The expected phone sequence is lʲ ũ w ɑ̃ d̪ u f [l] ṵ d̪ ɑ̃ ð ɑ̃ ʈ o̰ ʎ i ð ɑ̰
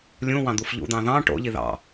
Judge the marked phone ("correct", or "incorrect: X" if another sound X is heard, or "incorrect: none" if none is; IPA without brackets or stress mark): incorrect: ʎ